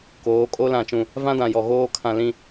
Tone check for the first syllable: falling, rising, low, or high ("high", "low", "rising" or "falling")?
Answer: rising